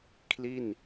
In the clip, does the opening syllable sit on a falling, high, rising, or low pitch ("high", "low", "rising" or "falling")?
falling